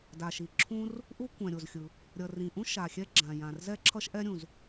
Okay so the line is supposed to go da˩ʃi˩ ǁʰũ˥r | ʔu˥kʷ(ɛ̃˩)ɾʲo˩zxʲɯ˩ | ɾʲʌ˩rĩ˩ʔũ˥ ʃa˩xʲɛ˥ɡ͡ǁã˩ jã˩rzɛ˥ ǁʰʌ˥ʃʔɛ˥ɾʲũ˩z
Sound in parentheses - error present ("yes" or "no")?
no